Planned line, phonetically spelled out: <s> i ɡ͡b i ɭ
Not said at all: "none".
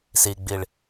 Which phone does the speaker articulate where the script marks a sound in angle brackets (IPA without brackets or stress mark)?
s